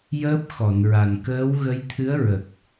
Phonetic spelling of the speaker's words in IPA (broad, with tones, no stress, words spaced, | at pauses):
jəː˦˥p̚ xɔ˨˩˨nɹa˨˩n kəː˧˥wɣə˧˥j t̪ʰɨ˧˥ə̯ɹə˨˩k̚